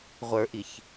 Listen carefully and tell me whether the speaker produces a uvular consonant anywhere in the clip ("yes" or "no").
yes